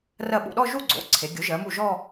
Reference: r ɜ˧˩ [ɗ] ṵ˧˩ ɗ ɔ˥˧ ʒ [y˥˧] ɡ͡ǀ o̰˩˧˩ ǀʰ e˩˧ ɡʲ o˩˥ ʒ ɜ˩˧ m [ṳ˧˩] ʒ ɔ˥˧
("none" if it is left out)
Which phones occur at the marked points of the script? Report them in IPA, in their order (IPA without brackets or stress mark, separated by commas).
ɓ, u˥˧, u˧˩